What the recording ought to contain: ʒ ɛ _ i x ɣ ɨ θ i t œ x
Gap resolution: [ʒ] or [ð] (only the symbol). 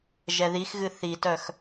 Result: ð